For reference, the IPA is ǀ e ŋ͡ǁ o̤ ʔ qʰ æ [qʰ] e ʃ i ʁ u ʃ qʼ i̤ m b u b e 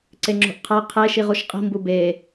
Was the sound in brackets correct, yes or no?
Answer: yes